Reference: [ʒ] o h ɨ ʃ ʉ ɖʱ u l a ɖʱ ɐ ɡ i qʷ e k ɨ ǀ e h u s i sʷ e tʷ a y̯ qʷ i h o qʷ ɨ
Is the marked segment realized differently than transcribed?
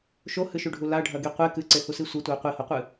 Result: yes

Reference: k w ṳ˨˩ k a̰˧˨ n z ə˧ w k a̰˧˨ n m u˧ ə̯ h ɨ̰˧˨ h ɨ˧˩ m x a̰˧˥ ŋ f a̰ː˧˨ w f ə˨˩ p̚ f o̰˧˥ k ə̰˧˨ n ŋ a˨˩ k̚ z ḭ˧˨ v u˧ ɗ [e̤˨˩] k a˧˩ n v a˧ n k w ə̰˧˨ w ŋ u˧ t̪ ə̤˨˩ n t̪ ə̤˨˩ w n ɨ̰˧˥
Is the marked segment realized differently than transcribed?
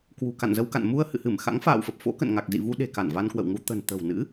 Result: no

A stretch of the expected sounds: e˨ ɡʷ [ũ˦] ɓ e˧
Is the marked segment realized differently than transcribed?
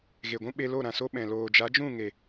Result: no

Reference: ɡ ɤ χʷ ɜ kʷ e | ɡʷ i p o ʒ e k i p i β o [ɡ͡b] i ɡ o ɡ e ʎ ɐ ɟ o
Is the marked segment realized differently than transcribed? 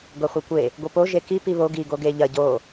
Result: yes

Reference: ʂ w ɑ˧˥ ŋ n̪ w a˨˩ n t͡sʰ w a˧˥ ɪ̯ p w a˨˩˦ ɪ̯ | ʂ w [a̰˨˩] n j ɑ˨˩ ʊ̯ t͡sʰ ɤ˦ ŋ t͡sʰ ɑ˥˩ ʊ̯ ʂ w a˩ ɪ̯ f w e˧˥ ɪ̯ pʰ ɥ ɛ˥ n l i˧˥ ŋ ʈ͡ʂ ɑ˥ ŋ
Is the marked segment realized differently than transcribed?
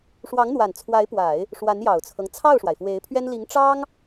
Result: yes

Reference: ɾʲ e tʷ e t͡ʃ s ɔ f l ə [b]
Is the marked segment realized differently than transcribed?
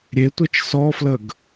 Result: yes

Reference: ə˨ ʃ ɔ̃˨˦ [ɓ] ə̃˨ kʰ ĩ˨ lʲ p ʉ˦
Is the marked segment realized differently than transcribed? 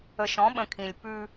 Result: no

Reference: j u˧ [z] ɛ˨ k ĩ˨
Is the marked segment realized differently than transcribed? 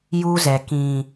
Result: no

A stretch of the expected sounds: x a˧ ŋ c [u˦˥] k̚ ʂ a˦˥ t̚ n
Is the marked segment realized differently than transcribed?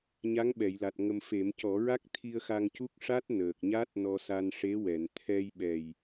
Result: no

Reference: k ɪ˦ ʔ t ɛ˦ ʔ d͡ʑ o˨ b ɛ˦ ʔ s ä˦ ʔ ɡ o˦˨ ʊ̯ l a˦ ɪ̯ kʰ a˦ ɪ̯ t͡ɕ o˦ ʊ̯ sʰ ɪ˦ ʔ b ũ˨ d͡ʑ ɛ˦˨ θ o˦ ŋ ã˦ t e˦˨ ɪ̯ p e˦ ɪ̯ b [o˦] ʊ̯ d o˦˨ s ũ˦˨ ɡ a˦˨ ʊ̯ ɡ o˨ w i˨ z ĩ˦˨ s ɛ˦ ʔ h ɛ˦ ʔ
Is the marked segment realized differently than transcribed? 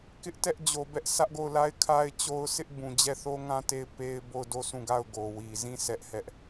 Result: yes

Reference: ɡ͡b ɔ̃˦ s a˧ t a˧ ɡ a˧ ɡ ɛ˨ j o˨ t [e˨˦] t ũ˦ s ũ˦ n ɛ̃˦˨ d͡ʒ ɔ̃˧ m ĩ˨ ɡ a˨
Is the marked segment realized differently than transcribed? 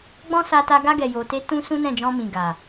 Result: yes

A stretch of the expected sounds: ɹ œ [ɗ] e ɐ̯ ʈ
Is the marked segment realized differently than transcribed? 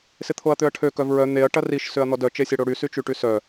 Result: yes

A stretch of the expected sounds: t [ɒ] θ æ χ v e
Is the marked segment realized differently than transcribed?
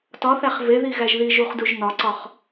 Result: no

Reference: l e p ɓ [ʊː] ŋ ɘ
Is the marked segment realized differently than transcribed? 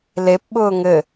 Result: no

